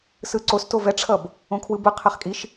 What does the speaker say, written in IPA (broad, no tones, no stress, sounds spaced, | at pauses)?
s ɯ ǀ o s t o v ɛ ʈ͡ʂʰ ʌ b | õ kʰ w ɯ b ɯ qʰ ɛ χ kʼ i ʃ